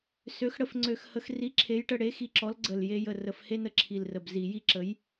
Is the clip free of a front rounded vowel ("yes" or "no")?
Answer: no